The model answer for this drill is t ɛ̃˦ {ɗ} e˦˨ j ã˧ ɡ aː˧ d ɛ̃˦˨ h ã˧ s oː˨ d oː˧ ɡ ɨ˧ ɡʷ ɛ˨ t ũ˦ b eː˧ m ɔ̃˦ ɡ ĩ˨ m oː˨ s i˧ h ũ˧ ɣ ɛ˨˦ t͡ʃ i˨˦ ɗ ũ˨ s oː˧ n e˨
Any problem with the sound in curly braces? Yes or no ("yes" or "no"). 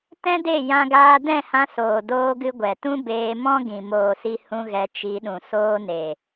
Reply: yes